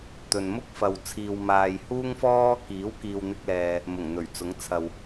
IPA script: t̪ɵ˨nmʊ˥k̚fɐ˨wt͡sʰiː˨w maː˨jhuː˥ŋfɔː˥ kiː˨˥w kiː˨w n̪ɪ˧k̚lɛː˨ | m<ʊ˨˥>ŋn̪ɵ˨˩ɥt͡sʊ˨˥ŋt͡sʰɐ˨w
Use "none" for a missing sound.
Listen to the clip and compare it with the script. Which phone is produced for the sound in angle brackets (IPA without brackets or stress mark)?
ʊ˨˩